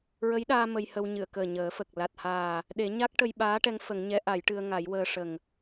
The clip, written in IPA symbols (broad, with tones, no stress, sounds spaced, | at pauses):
ɹ ə˧˥ j ɗ aː˧ m ə˧ j h ə˧ w ɲ ɨ˨˩˨ ə̯ k əː˨˩ ɲ əː˨˩˦ f ə˨˩ k̚ l a˨˩ t̚ h aː˨˩ | ɗ e˨˩˦ ɲ a˦˥ k̚ ʈ ə˧ j ɓ aː˧˥ ʈ ɛ˧˥ ŋ f ə˨˩˦ ŋ ɲ ɛ˧˥ ʔ a˨˩˦ j ʈ ɨ˧ ə̯ ŋ a˨˩˦ j w əː˧ ʂ ə˨˩ ŋ